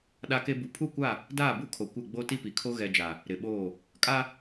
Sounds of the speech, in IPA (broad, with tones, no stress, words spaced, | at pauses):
ɗa˦ke˦ bu˨pʰu˦˨kʷa˦˨ | daː˦˨bu˦kʰo˨ kʷɪ˦˨ ɡ͡bo˦ti˦pi˨kʰo˦ ɣɛ˨d͡ʒa˨ | ɾɪ˨ɓoː˦˨ | kʼa˦